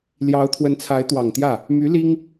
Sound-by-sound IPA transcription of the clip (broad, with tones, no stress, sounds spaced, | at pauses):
l j ɑ˧˥ ʊ̯ t̪ʰ w ə˧˥ n t͡sʰ a˧˥ ɪ̯ t̪ w ɑ˨˩ ŋ t̪ j ä˥˩ | m y˧˥ l i˥ ŋ